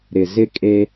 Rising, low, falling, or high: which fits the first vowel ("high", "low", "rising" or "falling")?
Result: low